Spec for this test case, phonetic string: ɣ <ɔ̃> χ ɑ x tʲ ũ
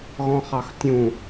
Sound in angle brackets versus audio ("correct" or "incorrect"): correct